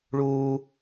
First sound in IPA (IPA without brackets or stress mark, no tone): ɭ